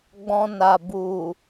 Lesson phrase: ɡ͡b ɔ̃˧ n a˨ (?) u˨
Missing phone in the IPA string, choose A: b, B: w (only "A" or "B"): A